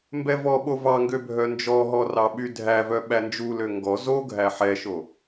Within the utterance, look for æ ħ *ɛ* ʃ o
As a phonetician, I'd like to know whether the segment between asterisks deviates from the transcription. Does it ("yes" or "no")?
no